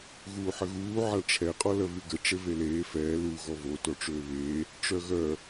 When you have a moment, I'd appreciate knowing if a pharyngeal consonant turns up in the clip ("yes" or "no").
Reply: yes